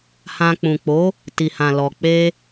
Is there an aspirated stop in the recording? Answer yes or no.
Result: no